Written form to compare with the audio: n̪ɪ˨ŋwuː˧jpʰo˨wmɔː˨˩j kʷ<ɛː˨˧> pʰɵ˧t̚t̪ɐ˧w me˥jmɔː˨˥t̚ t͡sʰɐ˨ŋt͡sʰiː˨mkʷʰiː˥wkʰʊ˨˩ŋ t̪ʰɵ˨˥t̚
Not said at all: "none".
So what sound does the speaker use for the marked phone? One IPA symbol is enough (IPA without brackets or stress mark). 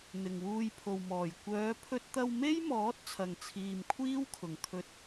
œː˨˧